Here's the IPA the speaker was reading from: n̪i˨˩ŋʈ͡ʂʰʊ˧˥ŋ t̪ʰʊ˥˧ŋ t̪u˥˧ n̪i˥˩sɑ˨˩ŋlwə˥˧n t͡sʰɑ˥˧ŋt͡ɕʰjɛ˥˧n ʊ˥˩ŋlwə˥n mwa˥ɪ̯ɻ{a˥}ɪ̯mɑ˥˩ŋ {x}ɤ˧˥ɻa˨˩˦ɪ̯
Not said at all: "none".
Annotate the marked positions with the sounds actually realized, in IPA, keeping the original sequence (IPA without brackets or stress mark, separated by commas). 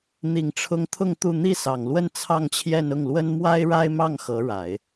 a˥, x